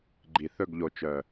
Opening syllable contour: low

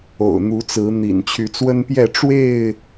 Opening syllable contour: low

